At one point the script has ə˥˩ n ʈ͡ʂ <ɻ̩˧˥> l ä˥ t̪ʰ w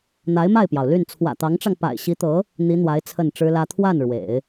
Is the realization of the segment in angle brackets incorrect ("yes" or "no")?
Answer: yes